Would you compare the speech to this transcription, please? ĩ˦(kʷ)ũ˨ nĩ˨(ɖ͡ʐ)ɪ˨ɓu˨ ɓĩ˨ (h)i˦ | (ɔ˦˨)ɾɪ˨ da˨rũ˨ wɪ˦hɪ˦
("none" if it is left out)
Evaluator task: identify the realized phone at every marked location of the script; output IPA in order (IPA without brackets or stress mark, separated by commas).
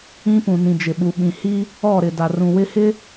p, d͡ʒ, h, ɔ˦˨